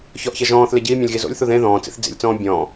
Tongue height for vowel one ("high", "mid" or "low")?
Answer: mid